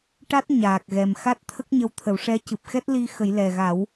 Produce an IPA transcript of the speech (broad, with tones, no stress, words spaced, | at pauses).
ʈa˦˥t̚ ɲaː˨˩k̚ɣɛ˨˩m xa˦˥t̚t̪ʰə˦˥k̚ɲə˧wt̪ʰə˨˩˦w ʂɛ˧˥ cɨ˨˩p̚xɛ˦˥t̚li˧ xə˨˩˦jlɛ˨˩ɣa˨˩˦w